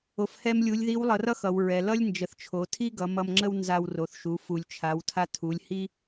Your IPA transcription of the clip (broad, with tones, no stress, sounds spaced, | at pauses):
o˩ f h ɛ˧ m lʲ u˩˧ lʲ ð i˧˥ w lˠ ʌ˩˧ r ʌ˥ x ʌ˩ w ɹ ɛ˩ l ʌ˥ lʲ n d͡ʒ ə˩˧ θ t͡ʃʰ o˩˧ tʰ i˥ ɡ ʌ˩˧ m ʌ˧ m ŋ͡ǁ ə˥ w n z a˧ w r o˩˧ θ ʃ u˩˧ f u˩ lʲ t͡ʃʰ a˩˧ w tʰ a˧ tʰ u˩˧ lʲ h i˥